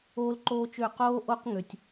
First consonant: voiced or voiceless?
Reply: voiced